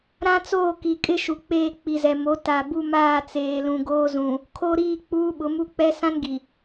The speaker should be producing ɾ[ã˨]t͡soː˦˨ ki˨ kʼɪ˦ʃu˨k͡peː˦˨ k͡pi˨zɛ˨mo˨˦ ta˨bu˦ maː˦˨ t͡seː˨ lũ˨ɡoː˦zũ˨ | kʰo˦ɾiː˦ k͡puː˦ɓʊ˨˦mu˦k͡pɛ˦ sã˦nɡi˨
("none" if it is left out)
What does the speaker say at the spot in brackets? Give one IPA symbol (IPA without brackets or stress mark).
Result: ã˦